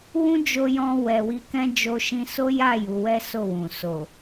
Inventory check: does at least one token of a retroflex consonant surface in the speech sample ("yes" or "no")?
no